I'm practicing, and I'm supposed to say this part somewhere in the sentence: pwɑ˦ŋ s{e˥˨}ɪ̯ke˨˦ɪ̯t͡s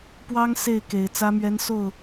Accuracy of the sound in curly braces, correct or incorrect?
correct